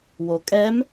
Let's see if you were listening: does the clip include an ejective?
yes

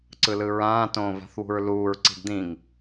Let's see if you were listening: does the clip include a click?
yes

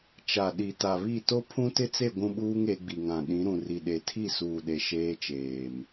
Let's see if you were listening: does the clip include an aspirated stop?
yes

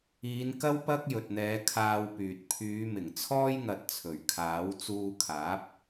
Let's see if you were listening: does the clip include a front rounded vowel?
yes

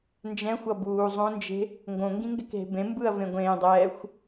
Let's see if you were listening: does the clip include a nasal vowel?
yes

